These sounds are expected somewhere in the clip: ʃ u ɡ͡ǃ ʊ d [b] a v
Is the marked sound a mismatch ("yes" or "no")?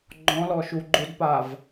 yes